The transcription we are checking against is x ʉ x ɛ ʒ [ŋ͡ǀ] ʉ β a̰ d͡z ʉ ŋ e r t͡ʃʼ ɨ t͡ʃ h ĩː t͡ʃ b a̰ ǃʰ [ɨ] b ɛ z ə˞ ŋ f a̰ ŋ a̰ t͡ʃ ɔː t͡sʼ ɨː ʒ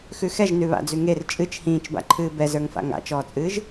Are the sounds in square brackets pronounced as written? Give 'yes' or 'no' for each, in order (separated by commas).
no, no